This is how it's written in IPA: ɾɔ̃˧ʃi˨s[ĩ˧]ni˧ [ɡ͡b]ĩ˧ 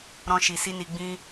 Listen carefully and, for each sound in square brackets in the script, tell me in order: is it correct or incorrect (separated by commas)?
incorrect, correct